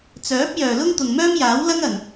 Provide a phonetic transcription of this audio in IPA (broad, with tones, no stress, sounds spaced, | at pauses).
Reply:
t͡s œː˨˥ p̚ j œː˨ l ʊ˥ ŋ t̪ ʊ˨ ŋ m œː˥ m j aː˨˥ w l ɐ˥ ŋ ɐ˨˩ n